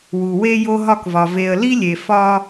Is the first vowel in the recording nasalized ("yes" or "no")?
no